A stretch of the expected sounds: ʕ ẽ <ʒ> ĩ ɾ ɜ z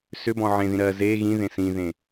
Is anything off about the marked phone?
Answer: yes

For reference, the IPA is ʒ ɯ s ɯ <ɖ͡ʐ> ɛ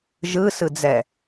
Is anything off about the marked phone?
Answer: yes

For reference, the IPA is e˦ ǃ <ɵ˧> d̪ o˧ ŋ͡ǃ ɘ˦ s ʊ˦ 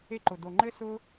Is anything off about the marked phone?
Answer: yes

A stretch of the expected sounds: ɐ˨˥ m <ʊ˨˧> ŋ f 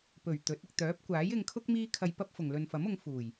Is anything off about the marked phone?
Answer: no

